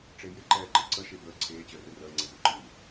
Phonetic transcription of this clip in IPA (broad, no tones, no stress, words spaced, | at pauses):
ʈ͡ʂejɪ ǃɛːǃɪǀə ʃebəː ǀʰeː t͡ɕəːrɘrəː ŋ͡ǀɛzuǃɨː